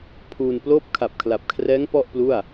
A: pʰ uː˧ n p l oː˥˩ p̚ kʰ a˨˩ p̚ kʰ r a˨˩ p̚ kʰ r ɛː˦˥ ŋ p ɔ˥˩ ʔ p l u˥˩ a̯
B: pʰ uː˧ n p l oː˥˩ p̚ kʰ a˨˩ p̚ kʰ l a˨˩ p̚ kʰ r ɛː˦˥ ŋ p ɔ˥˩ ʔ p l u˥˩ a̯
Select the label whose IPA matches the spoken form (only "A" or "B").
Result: B